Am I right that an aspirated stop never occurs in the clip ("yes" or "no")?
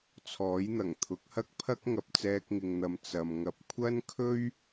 no